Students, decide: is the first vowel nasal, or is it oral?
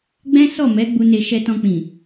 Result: nasal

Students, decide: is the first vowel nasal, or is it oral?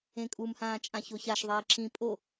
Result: nasal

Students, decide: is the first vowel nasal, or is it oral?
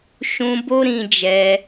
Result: nasal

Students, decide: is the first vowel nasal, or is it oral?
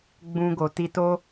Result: nasal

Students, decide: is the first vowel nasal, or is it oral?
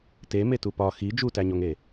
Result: oral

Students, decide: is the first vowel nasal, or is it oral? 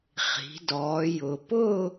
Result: oral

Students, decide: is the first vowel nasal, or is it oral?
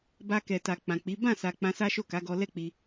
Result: oral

